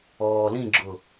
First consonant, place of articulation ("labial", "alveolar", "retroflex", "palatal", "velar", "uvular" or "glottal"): alveolar